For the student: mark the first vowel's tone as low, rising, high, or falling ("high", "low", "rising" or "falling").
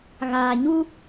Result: low